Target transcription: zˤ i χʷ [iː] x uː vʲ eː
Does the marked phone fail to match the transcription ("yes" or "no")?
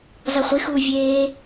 yes